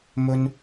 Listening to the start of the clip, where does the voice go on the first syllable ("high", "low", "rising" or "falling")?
high